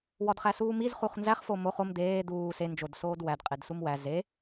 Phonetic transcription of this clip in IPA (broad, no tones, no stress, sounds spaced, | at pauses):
w ɒ d χ æ s uː m i z χ u χ n z æ χ f o m o χ o m d̪ eː d̪ uː s e n d͡ʒ o d s oː d w æ d qʼ e d s u m w æ z e